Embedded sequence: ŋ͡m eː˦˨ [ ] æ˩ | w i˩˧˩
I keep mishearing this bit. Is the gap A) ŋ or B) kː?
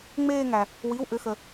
A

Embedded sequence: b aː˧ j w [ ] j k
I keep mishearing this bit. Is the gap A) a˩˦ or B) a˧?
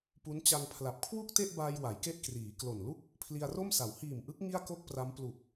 A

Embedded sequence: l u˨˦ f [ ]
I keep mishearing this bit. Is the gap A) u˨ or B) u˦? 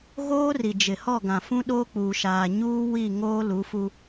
B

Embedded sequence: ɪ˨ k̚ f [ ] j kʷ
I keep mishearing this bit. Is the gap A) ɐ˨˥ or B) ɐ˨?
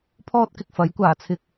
A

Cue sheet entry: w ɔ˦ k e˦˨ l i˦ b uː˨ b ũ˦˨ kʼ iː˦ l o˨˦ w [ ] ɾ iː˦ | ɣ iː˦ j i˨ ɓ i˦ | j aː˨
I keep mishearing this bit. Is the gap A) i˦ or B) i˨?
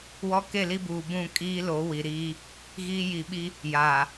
B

